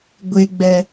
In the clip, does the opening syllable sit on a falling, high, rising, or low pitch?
high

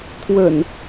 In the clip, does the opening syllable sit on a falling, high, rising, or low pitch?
low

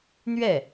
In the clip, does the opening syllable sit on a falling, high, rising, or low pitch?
falling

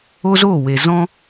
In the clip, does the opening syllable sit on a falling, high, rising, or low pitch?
high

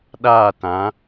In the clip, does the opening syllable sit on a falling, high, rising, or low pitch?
falling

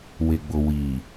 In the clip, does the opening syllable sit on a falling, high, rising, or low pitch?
low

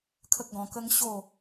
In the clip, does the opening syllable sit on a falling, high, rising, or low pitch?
high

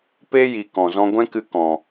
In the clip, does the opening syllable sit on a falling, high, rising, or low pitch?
high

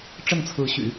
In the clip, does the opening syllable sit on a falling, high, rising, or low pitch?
falling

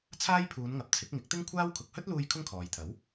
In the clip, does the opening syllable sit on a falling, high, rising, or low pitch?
high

